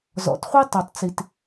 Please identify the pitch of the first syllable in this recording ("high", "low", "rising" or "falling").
low